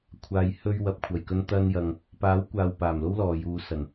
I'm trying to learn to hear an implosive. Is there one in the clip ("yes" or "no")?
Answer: no